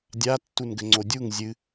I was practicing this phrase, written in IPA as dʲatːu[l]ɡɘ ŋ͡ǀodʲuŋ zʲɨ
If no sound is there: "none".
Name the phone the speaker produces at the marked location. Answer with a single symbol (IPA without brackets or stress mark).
n